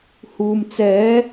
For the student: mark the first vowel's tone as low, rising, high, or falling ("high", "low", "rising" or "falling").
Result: low